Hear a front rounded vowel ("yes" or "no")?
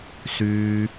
yes